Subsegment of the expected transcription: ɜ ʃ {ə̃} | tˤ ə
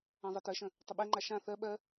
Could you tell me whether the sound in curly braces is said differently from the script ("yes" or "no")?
no